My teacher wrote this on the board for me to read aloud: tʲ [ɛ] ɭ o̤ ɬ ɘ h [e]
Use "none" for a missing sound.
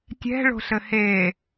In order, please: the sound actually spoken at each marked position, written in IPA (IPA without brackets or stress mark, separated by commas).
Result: ɛ̤, e